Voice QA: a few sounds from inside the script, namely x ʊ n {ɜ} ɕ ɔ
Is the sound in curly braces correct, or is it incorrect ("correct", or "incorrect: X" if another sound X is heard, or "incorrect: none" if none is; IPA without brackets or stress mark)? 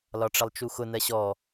correct